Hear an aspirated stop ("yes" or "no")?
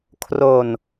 yes